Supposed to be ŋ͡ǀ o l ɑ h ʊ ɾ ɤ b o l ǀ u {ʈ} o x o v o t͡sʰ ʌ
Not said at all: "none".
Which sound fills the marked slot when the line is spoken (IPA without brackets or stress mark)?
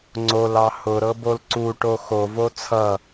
ʈ